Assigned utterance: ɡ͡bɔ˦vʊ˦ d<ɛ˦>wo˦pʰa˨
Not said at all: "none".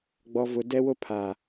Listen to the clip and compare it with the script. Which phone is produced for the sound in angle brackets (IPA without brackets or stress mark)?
ɛ˦